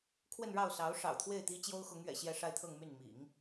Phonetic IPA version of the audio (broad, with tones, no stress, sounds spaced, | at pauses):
kʰ w ə˥˧ n ɻ ɑ˥˩ ʊ̯ s ɑ˧˥ ʊ̯ ʂ ɑ̰˨˩ ʊ̯ t̪ʰ w e˥˩ ɪ̯ t̪ i˥ t͡ɕ j o˥ ʊ̯ x ʊ˧˥ ŋ ɥ ɛ̰˨˩ ɕ j ɛ˥˧ ʂ a˥˧ ɪ̯ t̪ʰ ɤ˥˧ ŋ m y˥˩ n m ḭ˨˩˦ ŋ